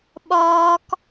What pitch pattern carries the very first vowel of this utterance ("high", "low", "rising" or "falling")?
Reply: high